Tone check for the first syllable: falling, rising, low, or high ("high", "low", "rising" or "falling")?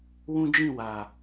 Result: high